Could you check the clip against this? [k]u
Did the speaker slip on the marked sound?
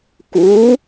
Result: no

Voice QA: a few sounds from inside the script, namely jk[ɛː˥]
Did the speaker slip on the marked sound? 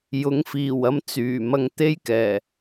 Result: yes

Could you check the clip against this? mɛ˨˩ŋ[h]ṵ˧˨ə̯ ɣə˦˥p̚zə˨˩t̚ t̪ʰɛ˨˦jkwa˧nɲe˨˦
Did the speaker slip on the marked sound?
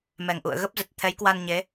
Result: yes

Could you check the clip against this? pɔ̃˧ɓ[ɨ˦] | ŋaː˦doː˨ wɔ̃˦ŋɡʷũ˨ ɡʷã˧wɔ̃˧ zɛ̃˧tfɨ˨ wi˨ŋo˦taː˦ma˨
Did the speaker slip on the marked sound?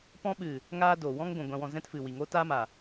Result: yes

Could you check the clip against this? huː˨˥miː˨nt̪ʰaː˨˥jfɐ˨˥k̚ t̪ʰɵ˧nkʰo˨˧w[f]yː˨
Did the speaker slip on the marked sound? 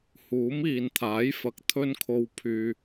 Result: yes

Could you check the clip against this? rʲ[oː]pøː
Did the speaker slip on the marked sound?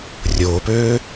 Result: no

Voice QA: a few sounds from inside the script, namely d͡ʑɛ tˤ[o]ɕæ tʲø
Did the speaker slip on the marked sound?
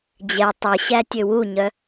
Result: yes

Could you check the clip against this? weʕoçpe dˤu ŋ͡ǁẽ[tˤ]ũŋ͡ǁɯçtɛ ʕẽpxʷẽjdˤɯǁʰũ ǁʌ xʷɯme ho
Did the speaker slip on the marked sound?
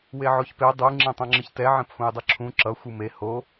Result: no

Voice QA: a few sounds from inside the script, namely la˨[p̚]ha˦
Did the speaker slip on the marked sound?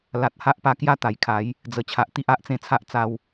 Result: yes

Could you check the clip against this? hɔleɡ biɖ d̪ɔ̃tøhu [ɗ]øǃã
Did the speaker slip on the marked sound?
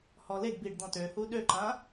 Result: no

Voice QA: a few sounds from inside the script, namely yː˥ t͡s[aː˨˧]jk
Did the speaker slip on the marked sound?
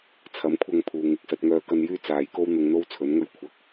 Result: no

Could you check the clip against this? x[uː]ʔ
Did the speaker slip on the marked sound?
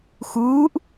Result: no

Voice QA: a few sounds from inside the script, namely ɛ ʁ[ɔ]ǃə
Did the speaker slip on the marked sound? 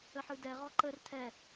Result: no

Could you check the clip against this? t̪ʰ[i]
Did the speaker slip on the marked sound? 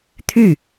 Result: yes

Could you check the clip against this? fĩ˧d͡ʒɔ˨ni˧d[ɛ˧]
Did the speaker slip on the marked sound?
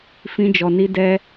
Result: no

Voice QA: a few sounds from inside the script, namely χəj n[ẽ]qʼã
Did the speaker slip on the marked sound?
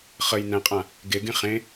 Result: yes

